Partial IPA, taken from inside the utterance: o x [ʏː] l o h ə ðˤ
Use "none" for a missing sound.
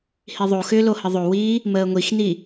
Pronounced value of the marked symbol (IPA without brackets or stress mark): ʏː